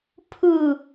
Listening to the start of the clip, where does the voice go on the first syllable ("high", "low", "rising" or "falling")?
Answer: low